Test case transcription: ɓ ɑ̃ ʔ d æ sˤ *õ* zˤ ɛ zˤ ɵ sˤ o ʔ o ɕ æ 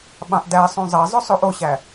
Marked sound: correct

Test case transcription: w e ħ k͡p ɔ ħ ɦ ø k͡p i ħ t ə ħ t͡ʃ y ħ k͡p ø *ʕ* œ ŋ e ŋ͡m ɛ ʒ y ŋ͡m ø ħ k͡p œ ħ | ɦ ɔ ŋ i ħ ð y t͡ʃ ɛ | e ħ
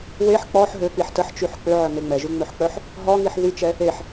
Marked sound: correct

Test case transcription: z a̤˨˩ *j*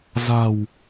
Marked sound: incorrect: w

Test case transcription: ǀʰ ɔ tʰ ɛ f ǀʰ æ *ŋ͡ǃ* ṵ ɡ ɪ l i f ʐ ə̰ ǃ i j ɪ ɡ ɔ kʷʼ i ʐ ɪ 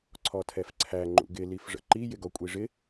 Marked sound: correct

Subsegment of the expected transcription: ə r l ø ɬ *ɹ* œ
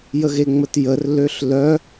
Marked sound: incorrect: l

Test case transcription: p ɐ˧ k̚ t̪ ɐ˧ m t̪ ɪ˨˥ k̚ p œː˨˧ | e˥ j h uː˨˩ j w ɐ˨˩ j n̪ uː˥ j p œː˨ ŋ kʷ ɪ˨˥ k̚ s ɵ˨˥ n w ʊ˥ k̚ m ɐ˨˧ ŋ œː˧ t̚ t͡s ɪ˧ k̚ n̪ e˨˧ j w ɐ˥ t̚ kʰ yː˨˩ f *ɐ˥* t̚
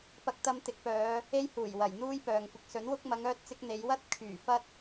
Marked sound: correct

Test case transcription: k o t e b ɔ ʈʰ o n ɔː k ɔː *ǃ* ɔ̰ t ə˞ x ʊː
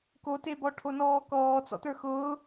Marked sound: incorrect: t͡s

